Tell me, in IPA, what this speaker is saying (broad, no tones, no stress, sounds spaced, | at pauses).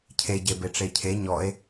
cʰ e ɟ e b e ʈ͡ʂ e cʰ e ɲ ɔ e̯